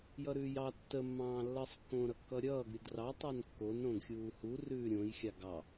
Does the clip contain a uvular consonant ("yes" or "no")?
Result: no